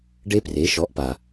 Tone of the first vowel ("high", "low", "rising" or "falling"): high